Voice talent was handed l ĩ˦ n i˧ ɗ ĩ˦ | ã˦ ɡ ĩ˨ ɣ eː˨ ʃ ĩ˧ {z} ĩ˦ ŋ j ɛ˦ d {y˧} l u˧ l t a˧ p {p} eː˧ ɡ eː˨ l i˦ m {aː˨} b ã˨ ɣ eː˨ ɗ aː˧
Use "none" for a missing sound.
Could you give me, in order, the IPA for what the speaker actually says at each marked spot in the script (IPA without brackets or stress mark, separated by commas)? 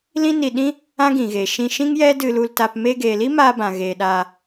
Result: ʃ, ɨ˧, m, aː˧